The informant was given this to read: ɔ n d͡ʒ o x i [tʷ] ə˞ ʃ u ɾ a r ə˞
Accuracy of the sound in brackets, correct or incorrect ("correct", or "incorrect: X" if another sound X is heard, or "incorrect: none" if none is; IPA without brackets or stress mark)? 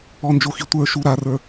correct